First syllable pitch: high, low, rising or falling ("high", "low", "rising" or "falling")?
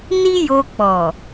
high